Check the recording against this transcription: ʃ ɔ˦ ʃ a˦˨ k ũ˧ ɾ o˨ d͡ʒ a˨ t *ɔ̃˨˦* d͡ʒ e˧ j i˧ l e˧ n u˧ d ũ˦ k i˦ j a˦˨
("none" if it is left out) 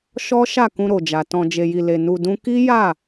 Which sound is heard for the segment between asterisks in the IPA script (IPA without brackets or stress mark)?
ɔ̃˧